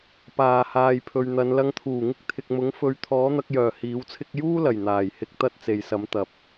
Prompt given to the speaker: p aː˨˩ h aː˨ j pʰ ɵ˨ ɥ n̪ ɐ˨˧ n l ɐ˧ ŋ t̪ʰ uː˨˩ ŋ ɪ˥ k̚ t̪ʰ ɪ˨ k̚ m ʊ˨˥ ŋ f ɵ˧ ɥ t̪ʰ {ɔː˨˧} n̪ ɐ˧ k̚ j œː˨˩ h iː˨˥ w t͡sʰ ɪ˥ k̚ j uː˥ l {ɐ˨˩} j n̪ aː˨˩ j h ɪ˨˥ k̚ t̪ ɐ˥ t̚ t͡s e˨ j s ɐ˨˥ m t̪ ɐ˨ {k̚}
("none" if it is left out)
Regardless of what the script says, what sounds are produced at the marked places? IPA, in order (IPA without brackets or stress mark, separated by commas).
ɔː˨˥, ɐ˨˩, p̚